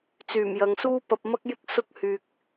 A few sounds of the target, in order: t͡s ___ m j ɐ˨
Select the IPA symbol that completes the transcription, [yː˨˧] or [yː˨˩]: yː˨˩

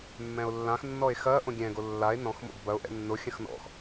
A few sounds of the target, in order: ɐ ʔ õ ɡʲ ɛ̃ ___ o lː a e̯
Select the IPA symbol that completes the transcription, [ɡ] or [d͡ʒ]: ɡ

